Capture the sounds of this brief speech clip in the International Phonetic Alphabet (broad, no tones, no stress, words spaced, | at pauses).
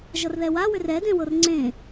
ʒʌrðɛwawʏr ɛdẽwɤr ŋ͡ǀẽ